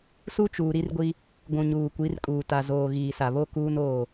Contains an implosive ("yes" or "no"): no